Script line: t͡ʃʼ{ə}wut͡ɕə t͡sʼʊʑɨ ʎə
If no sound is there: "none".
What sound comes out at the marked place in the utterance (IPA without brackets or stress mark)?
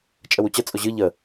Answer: ə